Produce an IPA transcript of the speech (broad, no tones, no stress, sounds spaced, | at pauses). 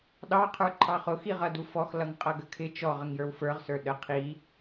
ɗ ɑ qʰ ə˞ ǃʰ ɑ χ ʊ x i ʁ ʌ d u f ɔ x l ʌ ŋ qʼ ʌ ɡ ə kʰ ɪ t͡ʃ ɔ ʁ ə ŋ j ə˞ w f ə˞ ʁ s ə˞ ɗ ə qʰ i